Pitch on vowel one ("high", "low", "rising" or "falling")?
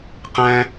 high